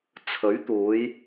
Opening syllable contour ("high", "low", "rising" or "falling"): rising